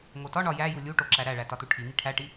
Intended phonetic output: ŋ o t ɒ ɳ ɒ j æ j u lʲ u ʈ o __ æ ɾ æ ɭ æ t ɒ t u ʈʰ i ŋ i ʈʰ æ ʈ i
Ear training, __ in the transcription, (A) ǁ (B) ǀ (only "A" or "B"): A